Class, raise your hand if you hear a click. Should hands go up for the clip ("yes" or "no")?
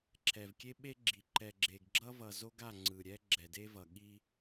yes